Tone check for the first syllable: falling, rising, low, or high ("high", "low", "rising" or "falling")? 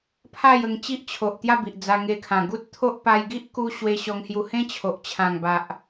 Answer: falling